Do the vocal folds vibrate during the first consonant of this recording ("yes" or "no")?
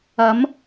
yes